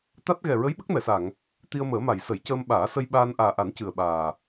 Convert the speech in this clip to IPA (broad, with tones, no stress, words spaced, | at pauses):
t̪a˦˥t̚ ɣɛ˨˩ɹə˧˥j ɓə˦˥k̚mɛ˨˩˨sa˨˩˨ŋ | t̪i˧ə̯məː˨˩˦ma˨˩˨j sə˨˩˦jcəː˧mɓaː˨˩˦sə˧j ɓaː˧n ʔaː˨˩ʔa˨˩˦n cɨ˨˩ə̯ɓaː˨˩